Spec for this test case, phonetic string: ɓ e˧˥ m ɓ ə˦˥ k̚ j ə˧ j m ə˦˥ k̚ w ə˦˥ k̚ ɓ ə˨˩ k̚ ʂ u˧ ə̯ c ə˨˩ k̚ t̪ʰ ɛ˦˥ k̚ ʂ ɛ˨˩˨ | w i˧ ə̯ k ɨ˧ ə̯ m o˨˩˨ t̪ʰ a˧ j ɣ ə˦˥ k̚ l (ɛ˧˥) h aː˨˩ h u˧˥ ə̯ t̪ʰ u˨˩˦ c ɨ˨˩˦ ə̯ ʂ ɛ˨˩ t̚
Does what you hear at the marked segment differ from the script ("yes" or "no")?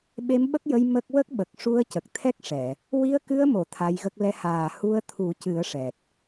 yes